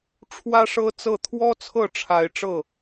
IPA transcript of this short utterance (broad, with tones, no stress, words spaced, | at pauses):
ʈ͡ʂʰwä˦ʂɤ˦t͡sɤ˥˨ t̪ʰwɔ˦t͡sʰɤ˥˨ʈ͡ʂʰa˨˦ɪ̯ ʈ͡ʂɤ˥˨